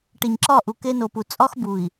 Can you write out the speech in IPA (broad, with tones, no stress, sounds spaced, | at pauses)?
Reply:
ʈ i˨ ɲ ǁ ɒ˦˨ ʔ u˨ k e˦ n o˨ p u˨ t͡sʼ ɒ˦ x b u˨ i̯